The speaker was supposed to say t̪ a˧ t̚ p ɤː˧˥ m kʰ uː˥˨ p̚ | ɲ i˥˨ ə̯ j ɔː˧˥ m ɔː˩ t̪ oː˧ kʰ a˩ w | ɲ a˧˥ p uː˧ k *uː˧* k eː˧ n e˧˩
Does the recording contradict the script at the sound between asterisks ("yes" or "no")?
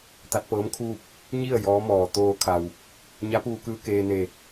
yes